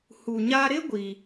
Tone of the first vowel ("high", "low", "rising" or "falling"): low